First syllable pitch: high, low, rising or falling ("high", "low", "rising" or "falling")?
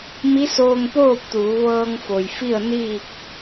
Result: rising